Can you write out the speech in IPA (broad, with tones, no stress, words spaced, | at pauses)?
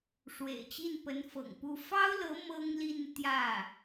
ʂwḛ˨˩ɪ̯t͡ɕi˥˩npə˧˥n fɤ̰˨˩ŋpu˥˩ fɑ˥ʊ̯lɤ˧˥ mɤ˥ŋli˥˧n t̪jä˥˩